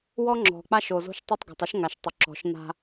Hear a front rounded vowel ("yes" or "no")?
yes